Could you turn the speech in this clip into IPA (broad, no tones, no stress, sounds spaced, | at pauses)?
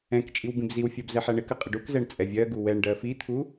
ɛ̃ k t͡ʃʼ i w b ĩ b z i w fʲ ɜ b z ɛ ħ æ ɳ ɪ k ɜ qʼ ɪ ɖ u k z ɛ ɳ t͡sʼ ɛ vʲ ɜ ɡ u w ɛ ɳ ɖ ɜ f i t̪ʰ u